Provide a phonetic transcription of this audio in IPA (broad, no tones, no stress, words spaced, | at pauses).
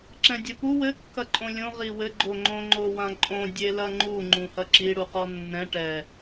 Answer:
ǁɛ̃dʲɘpu wɘ kːɐǃʼõlʲõ ʁiwɘ ɡ͡ǃoŋ͡ǃõ ŋ͡ǃowãǃʼõ dʲelɐŋ͡ǃu ŋ͡ǃũhɐǁi ɽuqɔnːɛ̃ ʈɛ